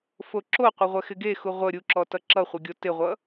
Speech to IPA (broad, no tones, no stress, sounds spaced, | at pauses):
f o ǁ o qʷ e ʁʷ ɛ x ɪ ɡ e x u ʁʷ ə ɾʲ u ǁ ɔ t ʌ ǁ ʌ χʷ ɪ ɡʲ o t ɪ ʁʷ ʌ